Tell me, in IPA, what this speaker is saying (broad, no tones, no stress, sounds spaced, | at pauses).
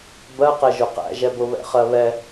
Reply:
b ɜ q ɛ ʒ ʊ q æ̰ ʒ ɛ b ʊ β ɛ̰ χ ɜ β ɛ